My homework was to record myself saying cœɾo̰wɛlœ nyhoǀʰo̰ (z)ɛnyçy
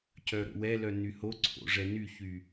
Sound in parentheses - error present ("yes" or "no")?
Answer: yes